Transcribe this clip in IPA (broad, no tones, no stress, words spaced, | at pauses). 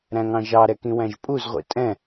ɾæ̃ŋɑ̃ʒɑɾɛ kĩwæ̃ʒpʼuzʁʷḭ tʼɛ̃